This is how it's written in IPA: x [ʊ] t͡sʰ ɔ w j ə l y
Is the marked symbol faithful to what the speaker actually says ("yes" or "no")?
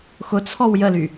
yes